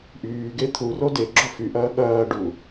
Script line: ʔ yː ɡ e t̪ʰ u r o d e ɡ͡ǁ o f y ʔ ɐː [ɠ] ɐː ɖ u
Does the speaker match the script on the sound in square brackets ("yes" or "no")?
yes